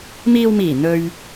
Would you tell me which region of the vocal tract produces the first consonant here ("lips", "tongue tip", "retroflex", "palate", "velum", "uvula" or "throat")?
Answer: lips